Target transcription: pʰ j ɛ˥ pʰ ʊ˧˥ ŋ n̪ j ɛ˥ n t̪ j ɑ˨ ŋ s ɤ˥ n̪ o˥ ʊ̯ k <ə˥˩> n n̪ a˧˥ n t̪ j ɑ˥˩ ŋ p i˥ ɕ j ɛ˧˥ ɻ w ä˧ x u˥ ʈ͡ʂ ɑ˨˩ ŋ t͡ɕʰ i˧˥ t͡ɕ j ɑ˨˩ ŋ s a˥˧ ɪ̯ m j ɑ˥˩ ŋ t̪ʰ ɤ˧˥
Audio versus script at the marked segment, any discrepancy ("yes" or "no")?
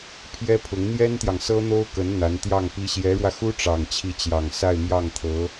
yes